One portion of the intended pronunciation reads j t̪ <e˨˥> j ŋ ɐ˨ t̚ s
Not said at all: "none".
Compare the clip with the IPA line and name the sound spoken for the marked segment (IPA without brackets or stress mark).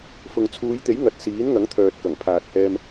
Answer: e˨˥